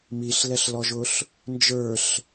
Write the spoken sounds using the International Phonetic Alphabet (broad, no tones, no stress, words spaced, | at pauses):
miɬlɛɬlɔʒʊɬ | nd͡ʒə˞ɬ